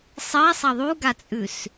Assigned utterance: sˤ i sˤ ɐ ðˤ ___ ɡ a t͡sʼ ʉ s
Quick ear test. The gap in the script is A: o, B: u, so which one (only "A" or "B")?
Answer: B